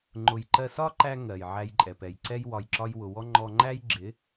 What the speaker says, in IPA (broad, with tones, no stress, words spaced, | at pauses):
ŋ͡ǃʊ˨jǃɜ˧sɒ˦ǃæ˧ ŋɜ˨jʕæ˧j ǃʼɛ˨pɛ˨jǀɛ˦j wɒ˨jǁɒ˧j wʊ˨wɔ˦ ŋ͡ǃɔ˧ŋ͡ǃæ˦j ɡ͡ǁɪ˨˦